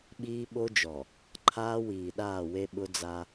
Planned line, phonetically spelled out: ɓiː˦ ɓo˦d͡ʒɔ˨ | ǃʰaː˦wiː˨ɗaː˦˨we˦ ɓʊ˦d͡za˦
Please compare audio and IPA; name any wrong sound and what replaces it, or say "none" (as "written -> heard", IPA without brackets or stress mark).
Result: none